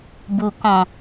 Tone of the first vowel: low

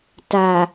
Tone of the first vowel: low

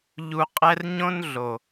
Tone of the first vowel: low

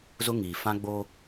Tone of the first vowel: high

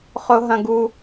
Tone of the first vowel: high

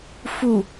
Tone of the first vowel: low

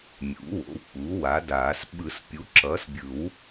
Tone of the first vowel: rising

